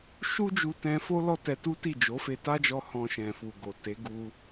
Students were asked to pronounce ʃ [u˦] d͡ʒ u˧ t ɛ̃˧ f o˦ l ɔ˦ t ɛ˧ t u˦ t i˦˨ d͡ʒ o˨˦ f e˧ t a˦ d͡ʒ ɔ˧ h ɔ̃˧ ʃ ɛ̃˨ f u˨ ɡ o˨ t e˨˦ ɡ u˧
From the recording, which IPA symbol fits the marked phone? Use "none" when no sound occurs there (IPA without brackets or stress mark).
u˦